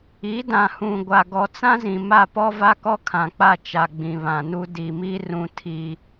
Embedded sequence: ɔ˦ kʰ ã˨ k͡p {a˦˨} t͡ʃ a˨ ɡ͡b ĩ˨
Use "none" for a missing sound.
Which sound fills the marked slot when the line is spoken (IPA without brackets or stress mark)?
a˦˨